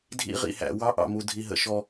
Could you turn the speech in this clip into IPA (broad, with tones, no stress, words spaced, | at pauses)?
dʱḭ˦ʁḭ˨hæ̰˨ wɑ˦ʔɑ̰˨mu˨ dʱi˨ɦə̰˨ ʃɔ˦